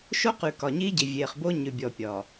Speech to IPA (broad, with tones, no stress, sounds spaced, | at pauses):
ʃ o˦ q ʉ˨ k ɒ˨ ɲ i˦ ɟ i˨ vʲ e˨ χ b o˦ ɲ ʉ˨ bʲ ɔ˨ pʲ ɒ˨